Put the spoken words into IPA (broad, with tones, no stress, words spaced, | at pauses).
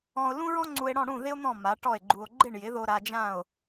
ɔ̃˧o̯lũ˥ ɹɔ̃˥ŋ͡ǀu˧e̯ɽɔ̃˥˩ ɽũ˥˩ ðɪ˥o̯n̪ɔ̃˥˩ ma˩˥ʈɔ˥˩e̯ɡ͡ǃu˧o̯ ɡ͡ǃɪ˥˩ɳjɪ˩˥ðo˧ ɾa˧d͡ʒã˥˩o̯